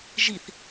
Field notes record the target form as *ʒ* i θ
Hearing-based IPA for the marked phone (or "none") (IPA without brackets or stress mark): ʒ